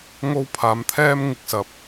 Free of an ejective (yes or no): yes